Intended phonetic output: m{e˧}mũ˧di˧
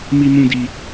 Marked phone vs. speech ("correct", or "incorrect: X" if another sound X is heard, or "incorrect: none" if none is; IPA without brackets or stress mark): incorrect: i˧